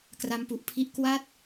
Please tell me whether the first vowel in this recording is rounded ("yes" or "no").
no